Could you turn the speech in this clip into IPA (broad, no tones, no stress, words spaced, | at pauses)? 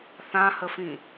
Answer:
θãhəfĩ